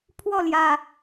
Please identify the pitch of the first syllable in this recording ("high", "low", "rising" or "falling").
falling